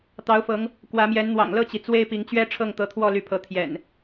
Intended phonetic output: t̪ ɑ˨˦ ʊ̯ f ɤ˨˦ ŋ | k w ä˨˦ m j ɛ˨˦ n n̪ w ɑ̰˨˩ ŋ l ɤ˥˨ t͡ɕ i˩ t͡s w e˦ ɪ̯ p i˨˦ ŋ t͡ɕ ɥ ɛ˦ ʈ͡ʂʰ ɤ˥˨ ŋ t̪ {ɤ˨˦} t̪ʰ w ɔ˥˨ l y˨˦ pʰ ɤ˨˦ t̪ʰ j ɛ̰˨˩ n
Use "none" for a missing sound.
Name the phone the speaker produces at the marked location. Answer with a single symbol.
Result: ɤ˨˦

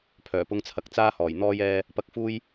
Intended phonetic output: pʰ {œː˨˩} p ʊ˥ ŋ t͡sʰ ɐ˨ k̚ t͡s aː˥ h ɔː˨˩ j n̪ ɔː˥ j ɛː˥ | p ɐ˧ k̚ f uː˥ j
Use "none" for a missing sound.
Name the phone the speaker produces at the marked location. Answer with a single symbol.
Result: œː˨˩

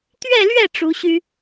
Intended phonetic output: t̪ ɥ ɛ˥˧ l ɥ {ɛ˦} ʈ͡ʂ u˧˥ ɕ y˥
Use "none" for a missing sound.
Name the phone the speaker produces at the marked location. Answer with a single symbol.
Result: ɛ˥˩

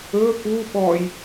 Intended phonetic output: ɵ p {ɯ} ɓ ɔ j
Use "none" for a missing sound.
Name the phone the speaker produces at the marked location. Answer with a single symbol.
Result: u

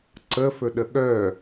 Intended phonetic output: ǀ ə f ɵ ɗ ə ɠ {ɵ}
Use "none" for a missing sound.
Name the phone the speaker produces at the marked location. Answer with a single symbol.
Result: œ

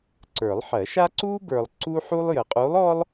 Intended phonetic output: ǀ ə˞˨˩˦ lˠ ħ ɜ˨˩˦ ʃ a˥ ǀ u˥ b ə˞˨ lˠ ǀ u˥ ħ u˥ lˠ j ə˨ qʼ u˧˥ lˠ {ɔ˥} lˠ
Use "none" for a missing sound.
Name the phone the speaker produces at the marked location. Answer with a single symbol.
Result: ɔ˥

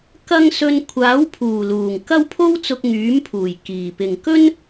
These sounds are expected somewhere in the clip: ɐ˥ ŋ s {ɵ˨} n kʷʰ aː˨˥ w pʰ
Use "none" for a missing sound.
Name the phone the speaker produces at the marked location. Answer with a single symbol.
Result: ɵ˧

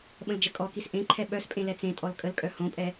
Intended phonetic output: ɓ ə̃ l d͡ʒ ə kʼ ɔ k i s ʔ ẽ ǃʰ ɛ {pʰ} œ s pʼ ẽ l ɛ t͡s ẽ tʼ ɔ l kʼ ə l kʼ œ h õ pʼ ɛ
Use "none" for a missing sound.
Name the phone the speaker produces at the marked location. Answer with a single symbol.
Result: ɓ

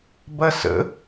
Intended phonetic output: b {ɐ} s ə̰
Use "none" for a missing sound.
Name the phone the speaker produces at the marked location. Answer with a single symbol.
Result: ɐ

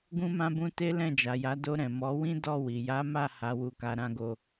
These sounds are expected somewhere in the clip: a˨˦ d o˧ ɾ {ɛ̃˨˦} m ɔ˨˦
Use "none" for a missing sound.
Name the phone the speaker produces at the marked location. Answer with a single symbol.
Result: ɛ̃˨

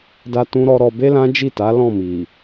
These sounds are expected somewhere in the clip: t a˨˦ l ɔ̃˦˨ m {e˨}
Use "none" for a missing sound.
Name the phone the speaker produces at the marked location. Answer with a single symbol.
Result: i˨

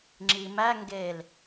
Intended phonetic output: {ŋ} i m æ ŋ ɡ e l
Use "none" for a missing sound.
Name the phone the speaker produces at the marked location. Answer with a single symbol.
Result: ŋ͡ǁ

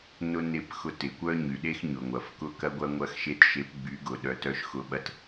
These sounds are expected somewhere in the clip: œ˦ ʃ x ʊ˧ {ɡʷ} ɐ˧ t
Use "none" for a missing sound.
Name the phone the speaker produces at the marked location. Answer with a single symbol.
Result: ɓ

